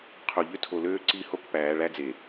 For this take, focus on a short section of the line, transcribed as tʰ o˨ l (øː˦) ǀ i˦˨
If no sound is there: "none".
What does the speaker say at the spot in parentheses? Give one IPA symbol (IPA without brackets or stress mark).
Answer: øː˦